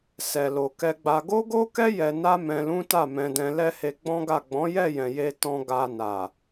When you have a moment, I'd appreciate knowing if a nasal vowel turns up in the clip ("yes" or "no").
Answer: yes